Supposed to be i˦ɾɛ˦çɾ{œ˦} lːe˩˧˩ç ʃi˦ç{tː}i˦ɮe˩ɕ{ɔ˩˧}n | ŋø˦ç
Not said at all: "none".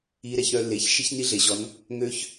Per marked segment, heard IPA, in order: œ˦, n, ɔ˩˧

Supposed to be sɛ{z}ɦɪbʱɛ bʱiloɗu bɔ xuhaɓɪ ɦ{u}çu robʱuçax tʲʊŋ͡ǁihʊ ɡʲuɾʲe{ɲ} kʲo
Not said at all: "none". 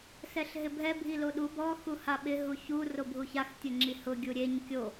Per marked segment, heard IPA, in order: ɬ, u, ɲ

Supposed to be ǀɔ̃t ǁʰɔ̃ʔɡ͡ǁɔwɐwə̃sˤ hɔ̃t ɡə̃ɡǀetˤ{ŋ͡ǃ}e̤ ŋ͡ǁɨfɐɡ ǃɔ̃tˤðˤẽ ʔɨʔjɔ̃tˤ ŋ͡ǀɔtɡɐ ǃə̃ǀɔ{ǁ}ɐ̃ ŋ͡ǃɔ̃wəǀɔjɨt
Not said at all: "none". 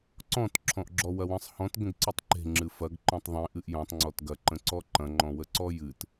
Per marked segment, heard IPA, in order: ǃ, ǃ

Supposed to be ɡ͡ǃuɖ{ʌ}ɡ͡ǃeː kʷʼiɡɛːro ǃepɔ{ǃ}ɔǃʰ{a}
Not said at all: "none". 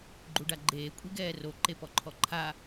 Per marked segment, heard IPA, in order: a, ǃʰ, a

